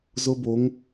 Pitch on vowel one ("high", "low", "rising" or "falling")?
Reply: high